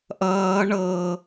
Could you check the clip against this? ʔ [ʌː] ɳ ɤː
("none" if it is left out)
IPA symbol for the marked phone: ʌː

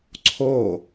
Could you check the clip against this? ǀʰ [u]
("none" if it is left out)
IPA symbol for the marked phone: o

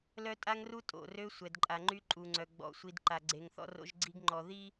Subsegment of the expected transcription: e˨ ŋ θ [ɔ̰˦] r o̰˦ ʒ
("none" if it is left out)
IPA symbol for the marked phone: ɔ̰˦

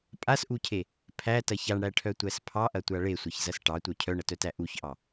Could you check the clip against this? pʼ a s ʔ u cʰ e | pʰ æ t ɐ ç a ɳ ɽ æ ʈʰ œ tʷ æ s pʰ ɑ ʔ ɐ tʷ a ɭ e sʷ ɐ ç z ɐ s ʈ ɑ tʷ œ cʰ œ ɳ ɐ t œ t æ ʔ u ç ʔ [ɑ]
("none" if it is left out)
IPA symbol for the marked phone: ɑ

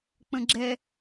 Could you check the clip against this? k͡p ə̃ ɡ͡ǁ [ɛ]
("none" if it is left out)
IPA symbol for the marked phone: ɛ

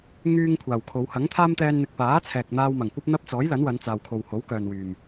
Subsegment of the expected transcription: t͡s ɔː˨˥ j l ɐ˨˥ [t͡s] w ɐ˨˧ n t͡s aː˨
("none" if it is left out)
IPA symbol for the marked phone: n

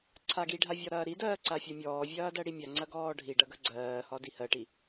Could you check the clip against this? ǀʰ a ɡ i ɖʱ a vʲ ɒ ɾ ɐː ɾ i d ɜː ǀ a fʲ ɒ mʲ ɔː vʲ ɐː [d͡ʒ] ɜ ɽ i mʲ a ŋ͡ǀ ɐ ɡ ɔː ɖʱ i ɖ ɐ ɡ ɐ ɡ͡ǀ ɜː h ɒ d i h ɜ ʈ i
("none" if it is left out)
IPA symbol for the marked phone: d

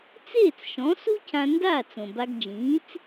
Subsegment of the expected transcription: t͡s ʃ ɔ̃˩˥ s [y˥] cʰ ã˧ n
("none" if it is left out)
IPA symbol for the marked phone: u˥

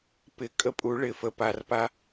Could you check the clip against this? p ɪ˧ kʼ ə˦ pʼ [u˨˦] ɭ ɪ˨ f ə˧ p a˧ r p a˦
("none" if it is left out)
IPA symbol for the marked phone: u˨˦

